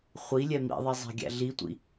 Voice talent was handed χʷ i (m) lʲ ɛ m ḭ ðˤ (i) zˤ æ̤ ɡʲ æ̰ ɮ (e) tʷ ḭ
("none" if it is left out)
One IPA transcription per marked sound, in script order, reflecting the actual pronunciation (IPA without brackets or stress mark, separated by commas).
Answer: none, i, i